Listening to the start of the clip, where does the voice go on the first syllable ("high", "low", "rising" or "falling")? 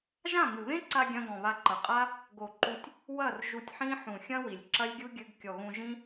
falling